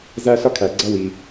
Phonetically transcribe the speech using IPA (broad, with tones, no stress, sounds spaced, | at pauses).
z æ˥ ɬ ʌ˥ kʰ æ˩ ɡ͡ǀ ʌ˥ w i˩